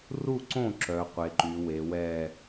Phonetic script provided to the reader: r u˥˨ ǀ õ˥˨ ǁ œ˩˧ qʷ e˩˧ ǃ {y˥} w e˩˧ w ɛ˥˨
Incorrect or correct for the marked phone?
incorrect: y˩˧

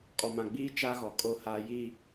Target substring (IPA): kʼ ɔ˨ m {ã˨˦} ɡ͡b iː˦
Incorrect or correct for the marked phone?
incorrect: ã˨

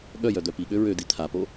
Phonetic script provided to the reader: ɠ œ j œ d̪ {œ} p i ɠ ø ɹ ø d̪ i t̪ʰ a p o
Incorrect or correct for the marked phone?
correct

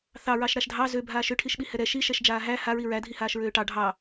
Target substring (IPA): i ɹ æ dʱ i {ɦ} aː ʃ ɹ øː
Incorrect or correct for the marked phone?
incorrect: h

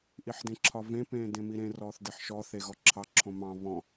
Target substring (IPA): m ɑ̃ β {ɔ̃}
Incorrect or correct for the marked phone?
correct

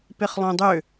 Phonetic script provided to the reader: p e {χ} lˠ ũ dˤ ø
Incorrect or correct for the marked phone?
correct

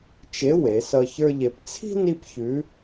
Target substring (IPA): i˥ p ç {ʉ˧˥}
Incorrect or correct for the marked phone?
correct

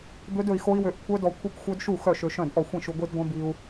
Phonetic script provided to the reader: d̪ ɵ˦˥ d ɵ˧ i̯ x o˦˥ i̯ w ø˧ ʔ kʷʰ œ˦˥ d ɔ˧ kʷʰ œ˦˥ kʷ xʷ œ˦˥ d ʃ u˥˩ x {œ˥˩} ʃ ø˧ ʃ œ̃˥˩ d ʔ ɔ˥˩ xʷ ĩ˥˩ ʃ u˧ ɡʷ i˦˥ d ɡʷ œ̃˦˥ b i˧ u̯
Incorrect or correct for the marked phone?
correct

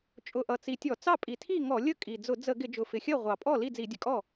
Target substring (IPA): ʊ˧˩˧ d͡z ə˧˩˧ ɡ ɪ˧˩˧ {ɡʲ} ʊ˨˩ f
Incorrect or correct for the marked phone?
incorrect: d͡ʒ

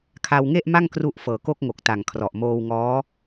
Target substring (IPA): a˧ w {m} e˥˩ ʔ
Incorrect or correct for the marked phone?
incorrect: ŋ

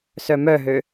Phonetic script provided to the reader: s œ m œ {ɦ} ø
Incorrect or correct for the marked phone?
correct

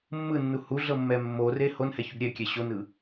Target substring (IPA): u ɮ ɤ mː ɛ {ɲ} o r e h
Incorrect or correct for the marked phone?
incorrect: mː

